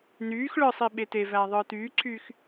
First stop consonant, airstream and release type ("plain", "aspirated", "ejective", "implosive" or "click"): implosive